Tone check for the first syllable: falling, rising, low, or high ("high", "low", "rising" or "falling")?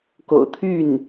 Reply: low